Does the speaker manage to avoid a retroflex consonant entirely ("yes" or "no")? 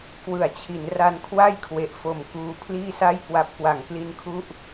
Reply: yes